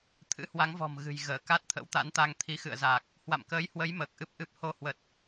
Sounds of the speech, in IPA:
t̪ʰ ɨ̰˧˥ h w a˨˦ ŋ v ɔ̤˨˩ m ɣ ɨ̤˨˩ j ɣ əː˧˩ k a˦˥ t̚ t̪ʰ ə̰˧˥ w t̪ a̰˧˥ n t̪ a˧ ŋ t̪ʰ i˨˦ x ɨ̰˧˨ ə̯ z aː˨˩ k̚ | h w a̰˧˨ m k əː˨˦ j h w ə˨˦ j m əː˨˩ k̚ ʔ ɨ˦˥ p̚ ʔ ɨ˦˥ p̚ h o˧ h w ə˨˩ t̚

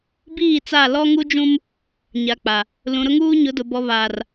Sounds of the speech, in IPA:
b iː˦˨ t͡s a˦˨ l ɔ˦ ŋ u˦ d͡ʒ ũ˦ m | ɲ a˨ k͡p a˨ | l ũ˨ ɾ ʊ˦ ŋ uː˦ ɲ ʊ˨˦ d ʊ˨ b ɔ˨ β aː˨ r

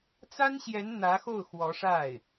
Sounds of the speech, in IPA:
t͡s a˥ n ɕ j ɛ˧˥ n n̪ ä˧˥ x o˥˩ ʊ̯ x w ɔ˧˥ ʂ a˥˩ ɪ̯

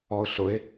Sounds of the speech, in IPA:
ɔ ʊ̯ ɬ ʊ ɪ̯

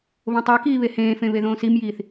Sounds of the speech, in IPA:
β õ tˤ e k iː β e h ẽː f ẽ β e ð õː s i m j iː θ

